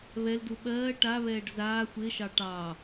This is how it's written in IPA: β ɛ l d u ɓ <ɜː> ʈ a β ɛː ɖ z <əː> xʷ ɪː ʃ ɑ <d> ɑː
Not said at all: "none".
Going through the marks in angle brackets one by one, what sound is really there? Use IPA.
ɜː, aː, ʈ

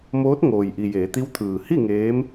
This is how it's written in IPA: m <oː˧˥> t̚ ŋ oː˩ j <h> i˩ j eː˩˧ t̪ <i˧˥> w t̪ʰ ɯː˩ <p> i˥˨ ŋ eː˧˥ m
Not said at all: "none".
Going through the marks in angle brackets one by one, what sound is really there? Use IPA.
oː˧˥, ʔ, i˧˥, h

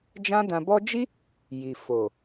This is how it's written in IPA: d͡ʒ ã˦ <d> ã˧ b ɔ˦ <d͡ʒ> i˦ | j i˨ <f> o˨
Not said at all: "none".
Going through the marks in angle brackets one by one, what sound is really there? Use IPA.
d, d͡ʒ, f

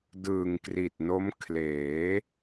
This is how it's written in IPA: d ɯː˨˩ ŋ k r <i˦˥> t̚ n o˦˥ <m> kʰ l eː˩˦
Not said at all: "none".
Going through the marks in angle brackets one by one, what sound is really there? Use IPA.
i˨˩, m

